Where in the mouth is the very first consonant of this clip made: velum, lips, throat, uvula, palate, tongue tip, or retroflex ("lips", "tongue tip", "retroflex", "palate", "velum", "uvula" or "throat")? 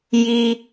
palate